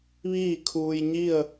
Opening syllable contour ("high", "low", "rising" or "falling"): falling